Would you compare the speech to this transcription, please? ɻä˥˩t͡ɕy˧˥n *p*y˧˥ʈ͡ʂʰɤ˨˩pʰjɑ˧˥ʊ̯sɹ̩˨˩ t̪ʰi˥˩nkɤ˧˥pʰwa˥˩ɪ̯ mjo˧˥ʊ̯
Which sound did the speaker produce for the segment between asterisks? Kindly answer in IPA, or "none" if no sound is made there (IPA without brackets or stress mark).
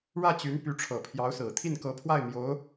p